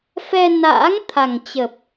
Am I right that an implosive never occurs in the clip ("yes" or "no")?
yes